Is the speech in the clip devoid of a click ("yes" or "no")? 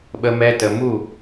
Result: yes